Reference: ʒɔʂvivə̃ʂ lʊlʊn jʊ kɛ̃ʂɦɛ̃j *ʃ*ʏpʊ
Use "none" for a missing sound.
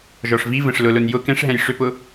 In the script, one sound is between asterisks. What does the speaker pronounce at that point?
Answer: ʂ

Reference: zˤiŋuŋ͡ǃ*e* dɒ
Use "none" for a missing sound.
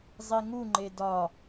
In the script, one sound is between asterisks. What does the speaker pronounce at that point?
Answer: e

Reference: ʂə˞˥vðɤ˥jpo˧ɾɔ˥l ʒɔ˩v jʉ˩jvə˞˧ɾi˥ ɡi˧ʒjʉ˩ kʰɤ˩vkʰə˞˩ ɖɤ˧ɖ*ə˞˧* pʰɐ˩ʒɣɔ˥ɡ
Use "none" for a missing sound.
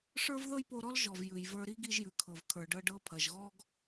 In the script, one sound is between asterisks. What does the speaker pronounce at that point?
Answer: ɤ˧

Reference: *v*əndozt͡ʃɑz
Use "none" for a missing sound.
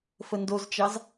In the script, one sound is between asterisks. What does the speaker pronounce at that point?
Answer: f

